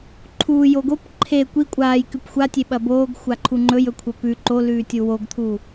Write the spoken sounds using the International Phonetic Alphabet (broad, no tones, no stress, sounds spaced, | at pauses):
ǃʰ uː j o ɡ o p ǃʰ e kʷ i kʷʼ aː j k ʉ p xʷ a tʲ e ɓ ɐ b oː ɡ xʷ a ǃʰ u ŋ͡ǃ ɵ j ɵ kʷʰ ɐ p ʉ ǃ o l ʉː tʲ u w o ɡ t̪ʰ u